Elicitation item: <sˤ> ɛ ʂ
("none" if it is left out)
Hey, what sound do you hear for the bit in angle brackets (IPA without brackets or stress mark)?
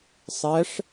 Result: sˤ